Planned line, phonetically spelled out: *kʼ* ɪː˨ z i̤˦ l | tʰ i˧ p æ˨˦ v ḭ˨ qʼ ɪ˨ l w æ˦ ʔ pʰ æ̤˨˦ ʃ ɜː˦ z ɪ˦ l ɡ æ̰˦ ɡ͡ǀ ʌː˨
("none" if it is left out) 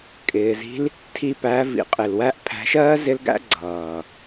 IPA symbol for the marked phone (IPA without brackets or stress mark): kʼ